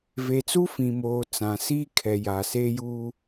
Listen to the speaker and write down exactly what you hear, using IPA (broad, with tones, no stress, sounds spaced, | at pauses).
v e˨ t͡s u˦ f ĩ˨ m oː˨ t͡s ã˨ s iː˦ kʰ ɛ˨ j a˨ s eː˦ j uː˦